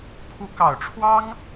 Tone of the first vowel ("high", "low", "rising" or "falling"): rising